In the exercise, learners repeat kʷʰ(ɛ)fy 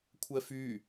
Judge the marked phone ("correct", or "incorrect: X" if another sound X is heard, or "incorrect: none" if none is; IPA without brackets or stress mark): correct